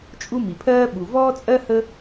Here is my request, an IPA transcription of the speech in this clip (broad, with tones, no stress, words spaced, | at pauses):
t͡ʃʼu˥mi˩pʰɜː˥ ɓu˩vɔː˥t͡sʼɜ˥ hə˥